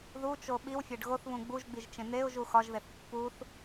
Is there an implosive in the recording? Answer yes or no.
yes